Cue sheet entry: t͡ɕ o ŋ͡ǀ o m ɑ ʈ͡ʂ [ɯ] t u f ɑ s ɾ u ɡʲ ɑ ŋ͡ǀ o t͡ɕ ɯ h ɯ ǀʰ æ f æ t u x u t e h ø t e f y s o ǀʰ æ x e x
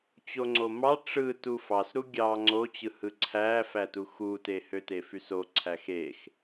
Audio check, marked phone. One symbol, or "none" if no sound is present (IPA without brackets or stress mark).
ɯ